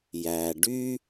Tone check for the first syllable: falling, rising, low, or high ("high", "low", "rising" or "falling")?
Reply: low